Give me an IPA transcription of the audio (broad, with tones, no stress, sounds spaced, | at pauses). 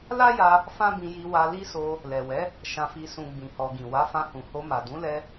l a˦ j a˧ | f ã˦ b ĩ˧ j i˧ w a˧ l i˦ s o˧ | l ɛ˨ w ɛ˨˦ | ʃ ã˨ f i˨ s ũ˨ ɡ͡b ĩ˨ h ɔ˨ ɡ ĩ˨ w a˨˦ f ã˧ h ũ˨ h o˧ m a˨ d ũ˨˦ l ɛ˧